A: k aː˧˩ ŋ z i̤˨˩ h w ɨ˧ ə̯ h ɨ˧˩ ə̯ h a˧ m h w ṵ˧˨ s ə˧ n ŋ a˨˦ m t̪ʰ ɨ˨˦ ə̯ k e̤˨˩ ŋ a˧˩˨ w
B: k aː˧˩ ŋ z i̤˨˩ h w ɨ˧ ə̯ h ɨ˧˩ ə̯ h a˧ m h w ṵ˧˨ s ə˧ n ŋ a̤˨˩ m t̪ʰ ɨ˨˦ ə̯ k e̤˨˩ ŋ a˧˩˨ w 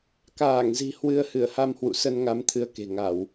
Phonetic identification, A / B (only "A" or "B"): A